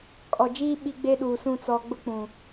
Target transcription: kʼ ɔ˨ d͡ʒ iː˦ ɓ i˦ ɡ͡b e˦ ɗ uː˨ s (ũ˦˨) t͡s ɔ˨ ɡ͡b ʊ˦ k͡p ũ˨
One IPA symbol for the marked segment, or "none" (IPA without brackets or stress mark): ũ˦˨